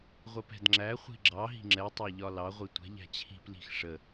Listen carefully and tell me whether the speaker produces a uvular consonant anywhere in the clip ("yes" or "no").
yes